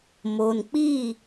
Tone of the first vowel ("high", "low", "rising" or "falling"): low